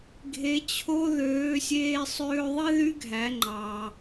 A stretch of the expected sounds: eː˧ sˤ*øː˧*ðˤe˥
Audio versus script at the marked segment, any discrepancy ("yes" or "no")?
no